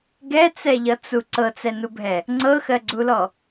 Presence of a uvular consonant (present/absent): absent